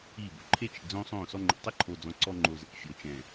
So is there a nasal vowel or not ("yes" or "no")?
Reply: yes